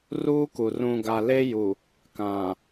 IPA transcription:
r uː˦ k u˨ r ũ˨ ɡ a˨ l e˦ j u˨ | k ã˨

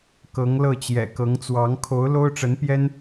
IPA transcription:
k ɤ˧˥ ŋ l ɤ˥˩ t͡ɕ j ɛ̰˨˩ k ɤ˧˥ ŋ t͡s w ɑ˧˥ ŋ kʰ o˧˥ ʊ̯ l o˥ ʊ̯ ʈ͡ʂ ə˧˥ n p j ɛ˥ n

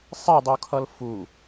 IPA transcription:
sˤ i dˤ u kʰ ʌ l f u

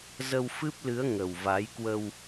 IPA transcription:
z ə˧ w f ɨ˦˥ p̚ l ɨ˨˦ ə̯ ŋ ə˨˩ w v a˨˦ j k w ə˧ w

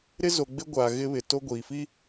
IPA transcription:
ɾ ɪ˦ z o˨ ɡ͡b ɪ˦ ɡʷ aː˨ ɣ ɪ˦ β ɪ˨ t o˦ ɡʷ iː˨ f i˦

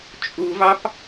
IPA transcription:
t͡ʃʼ u v ɑ p

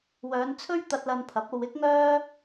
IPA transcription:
w œː˨˧ n t͡sʰ ɵ˥ ɥ t̪ ɐ˧ t̚ l ɐ˧ n pʰ ɐ˨˥ p̚ o˧ w ɪ˥ k̚ ŋ œː˥

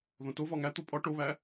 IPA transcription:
ð õ t o v ɒ ŋ æ t̪ o pʼ ɒ ʈ o β æ

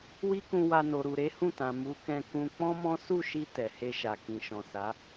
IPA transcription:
w i˦ k ũ˧ w a˧ n o˨ ɾ u˨ ɾ e˨˦ h ũ˦˨ t ã˨ m u˨˦ k ɛ̃˧ k ũ˧ k͡p ɔ̃˦ m ɔ̃˦ s u˦˨ ʃ i˧ t ɛ˨ h e˧ ʃ a˨ k ĩ˨ ʃ ɔ̃˨ s a˨˦

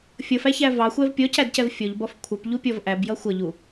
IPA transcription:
fʲ ʌ f æ ç æ v ɑ xʷ ɛ v pʲ ɔ c æ d c ɛ v fʲ ɔ ʎ b ɒ f kʷʰ ʌ p ʎ u pʲ ɔ v ʔ æ b j ʌ xʷ ʌ ʎ u

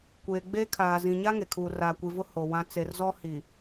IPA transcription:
kʷ eː˨ ɡ͡b eː˦ kʰ aː˨ z ĩ˨ ɲ a˦ ŋ e˨ kʰ uː˨ r aː˨ kʷ i˨ v ʊ˦ h o˨ w ã˦ t͡s e˨ r z ɔ˦ h i˨

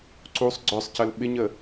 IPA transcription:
ǀ u sˤ ɡ͡ǀ œ sˤ c ə l ɓ ɪ ɲ ə

